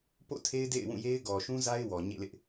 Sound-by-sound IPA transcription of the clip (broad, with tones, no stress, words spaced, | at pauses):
po̰˦˨tʰe˦ɪ̯ dḛ˦˨ɪ̯wũ˦˨je˦ɪ̯ ɡɔ˨ʃũ˦ za˦ɪ̯ wɔ˨ɲḛ˦˨lɪ˦ʔ